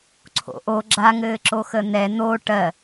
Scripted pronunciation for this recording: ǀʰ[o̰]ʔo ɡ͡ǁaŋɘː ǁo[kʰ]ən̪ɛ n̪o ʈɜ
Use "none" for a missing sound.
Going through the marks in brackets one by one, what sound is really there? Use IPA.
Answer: o̰, x

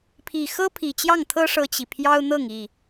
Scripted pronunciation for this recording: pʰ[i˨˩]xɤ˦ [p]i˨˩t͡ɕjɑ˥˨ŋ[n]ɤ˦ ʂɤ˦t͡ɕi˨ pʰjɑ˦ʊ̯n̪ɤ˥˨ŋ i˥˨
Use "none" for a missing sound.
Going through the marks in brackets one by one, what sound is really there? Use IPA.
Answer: i˨˩, pʰ, t̪ʰ

